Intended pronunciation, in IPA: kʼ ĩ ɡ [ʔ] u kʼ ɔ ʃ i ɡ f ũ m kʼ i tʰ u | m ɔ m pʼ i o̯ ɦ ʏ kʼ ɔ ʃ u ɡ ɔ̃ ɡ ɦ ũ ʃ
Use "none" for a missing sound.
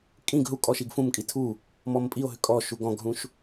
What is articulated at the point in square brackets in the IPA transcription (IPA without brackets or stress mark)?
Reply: ɦ